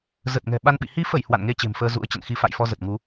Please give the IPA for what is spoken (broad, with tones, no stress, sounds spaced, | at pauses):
z ə˨˩ t̚ ŋ ɛ̤˨˩ ɓ a˧ n ɓ ḭ˧˨ h i˨˦ f ə˧˩ j h w a̰˧˨ n ŋ e˧ t͡ɕ e̤˨˩ m f əː˧ z ṵ˧˥ ə̯ t͡ɕ ə̰˧˨ n x i˨˦ f a̰˧˨ j f ɔ˧ z ə˨˩ t̚ ŋ u˨˦